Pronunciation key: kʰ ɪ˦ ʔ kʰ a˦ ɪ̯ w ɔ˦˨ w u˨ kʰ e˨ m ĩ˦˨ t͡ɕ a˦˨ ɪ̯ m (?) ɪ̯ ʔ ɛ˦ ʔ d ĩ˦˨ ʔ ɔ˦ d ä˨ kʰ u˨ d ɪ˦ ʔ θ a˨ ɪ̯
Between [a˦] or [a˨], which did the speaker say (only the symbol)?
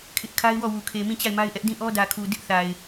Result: a˦